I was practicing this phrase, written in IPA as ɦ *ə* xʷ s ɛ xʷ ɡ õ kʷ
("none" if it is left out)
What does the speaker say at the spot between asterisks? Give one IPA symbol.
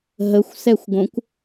ə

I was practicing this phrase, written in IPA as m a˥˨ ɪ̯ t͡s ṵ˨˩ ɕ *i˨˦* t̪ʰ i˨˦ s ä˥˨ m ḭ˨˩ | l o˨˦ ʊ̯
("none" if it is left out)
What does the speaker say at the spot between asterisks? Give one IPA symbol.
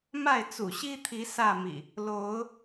i˦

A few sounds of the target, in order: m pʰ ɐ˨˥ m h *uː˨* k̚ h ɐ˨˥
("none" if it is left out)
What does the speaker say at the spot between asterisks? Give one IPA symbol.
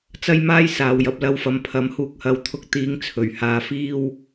uː˨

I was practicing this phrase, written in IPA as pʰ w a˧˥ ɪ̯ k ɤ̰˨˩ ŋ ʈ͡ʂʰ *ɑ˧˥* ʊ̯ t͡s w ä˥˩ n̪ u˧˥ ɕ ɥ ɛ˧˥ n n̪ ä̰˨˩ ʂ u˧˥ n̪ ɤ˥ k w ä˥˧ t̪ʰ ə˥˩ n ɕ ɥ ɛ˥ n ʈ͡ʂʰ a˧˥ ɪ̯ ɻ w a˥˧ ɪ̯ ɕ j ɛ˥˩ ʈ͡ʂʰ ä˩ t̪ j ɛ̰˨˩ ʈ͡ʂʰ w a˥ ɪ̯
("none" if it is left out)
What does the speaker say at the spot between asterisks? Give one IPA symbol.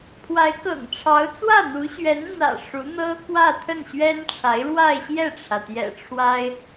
ɑ˧˥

